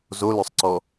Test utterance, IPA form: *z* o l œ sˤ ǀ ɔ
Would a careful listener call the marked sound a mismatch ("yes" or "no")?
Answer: no